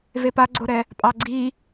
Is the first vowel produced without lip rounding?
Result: yes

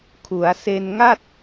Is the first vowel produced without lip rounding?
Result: no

